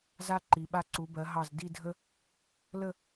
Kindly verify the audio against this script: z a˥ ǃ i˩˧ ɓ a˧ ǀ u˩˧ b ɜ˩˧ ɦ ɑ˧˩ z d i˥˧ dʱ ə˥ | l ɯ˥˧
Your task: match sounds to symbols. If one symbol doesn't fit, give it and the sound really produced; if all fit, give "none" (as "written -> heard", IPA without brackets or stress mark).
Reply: ɯ˥˧ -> ə˥˧